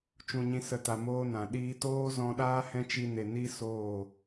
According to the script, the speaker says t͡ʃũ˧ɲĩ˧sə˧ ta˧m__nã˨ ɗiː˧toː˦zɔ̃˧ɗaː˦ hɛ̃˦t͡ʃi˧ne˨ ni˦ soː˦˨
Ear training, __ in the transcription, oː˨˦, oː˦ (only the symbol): oː˦